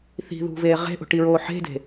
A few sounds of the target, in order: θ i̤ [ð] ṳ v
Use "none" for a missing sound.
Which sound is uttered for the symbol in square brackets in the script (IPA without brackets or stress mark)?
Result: ð